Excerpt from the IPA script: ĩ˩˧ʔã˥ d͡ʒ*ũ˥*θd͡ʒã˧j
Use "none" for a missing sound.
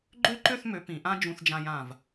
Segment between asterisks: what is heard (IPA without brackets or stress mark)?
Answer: ũ˧